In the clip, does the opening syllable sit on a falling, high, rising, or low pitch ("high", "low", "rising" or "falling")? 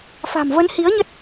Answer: low